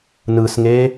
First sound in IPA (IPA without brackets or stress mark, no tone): n